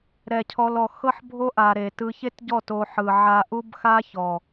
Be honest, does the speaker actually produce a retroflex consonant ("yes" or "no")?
no